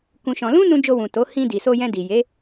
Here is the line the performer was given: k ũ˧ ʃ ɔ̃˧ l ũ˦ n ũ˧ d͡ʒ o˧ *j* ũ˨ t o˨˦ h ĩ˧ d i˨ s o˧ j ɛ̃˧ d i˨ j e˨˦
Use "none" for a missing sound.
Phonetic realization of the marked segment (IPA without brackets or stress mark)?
w